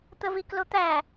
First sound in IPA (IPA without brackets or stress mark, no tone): t̪